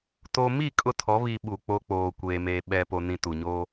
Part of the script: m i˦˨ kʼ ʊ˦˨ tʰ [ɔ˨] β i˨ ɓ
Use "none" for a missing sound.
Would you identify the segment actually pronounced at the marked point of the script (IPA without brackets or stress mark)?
ɔ˨˦